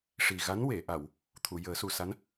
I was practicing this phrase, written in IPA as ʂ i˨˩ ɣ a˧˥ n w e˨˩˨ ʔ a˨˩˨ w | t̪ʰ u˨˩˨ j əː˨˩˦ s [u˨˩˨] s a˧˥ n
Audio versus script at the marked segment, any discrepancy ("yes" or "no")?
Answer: no